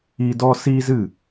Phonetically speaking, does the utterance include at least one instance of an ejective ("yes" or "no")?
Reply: no